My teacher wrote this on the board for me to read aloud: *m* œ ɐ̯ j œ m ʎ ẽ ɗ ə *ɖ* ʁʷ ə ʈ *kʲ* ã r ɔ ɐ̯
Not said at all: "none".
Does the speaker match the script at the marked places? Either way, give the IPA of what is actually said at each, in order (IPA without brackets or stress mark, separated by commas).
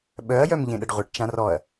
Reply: ɓ, ɖ, t͡ʃ